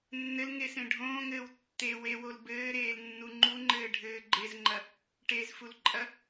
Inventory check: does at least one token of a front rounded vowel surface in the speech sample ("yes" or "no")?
no